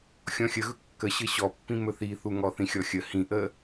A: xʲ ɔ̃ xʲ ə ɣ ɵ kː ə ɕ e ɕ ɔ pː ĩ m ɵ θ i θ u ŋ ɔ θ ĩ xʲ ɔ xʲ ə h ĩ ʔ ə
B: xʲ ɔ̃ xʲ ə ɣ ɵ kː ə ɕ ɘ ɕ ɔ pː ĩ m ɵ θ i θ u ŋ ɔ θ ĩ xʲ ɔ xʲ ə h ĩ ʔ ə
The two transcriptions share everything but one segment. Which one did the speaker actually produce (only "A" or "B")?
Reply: B